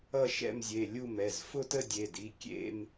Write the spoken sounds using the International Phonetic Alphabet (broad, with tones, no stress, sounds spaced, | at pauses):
ʌ˥˧ ʃ ɛ̰˥˧ m zʲ e˩˧˩ lʲ u˥˧ m ɛ˩˧˩ z f ʊ˥˧ t ə˥˧ dʲ e˩˧˩ d i˩˧˩ kʲ ḛ˥˧ m